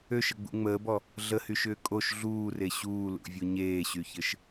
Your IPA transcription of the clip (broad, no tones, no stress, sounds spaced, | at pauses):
ø ʃ ə ɡ͡b ṵ ŋ͡m əː b ɔ | ɮ ə h y ʃ ʏː kʼ o ʃ ɮ uː r e ɕ uː l ṵ vʲ u ɲ eː ɕ y ç ɘ ʃ